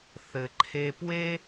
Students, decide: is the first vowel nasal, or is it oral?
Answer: oral